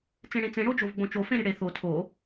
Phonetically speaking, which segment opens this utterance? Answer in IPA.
t͡s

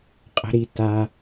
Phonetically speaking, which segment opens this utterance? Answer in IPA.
qʼ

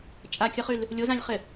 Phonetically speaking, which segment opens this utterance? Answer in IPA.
t͡ʃʼ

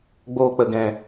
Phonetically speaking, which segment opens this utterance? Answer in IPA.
ɡ͡b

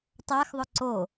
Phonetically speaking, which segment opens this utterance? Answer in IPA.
tˤ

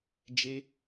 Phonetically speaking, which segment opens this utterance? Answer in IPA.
d͡ʒ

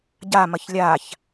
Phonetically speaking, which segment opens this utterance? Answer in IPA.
ɟ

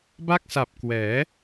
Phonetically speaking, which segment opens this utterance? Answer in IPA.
b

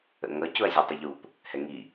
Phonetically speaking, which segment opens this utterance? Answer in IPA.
ə̰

